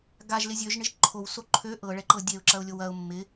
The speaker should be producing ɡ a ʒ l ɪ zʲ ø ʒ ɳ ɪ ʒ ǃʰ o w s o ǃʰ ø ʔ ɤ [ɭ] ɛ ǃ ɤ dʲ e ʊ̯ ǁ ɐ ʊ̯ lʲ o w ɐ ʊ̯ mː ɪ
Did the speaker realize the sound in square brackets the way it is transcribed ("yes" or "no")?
yes